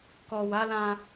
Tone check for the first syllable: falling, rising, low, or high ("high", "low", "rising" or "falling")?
low